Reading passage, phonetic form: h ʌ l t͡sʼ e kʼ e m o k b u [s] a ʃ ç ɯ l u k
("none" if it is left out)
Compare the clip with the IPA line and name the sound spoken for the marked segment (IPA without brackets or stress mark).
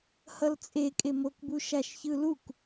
ʃ